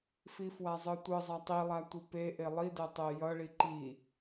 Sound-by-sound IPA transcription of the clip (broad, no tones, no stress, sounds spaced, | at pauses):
f i f w a zˤ ɯ tʷ ɯ zˤ a tˤ i lˠ a tʷ ɯ p e ʔ e lˠ i d ɛ tˤ e j ʌ ɭ i ǃ i